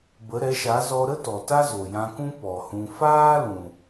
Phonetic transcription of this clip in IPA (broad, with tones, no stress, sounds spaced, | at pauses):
b ə˨˦ ɾ ɛ˨˦ ʃ a˨˦ z ɔ˧ ɾ ə˦ t ɔ˨ t a˦ z o˨ j ã˧ k ũ˦ p ɔ˨ h ũ˧ f aː˦ l ũ˨